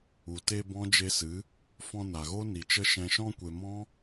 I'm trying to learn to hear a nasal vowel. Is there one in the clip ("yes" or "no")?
yes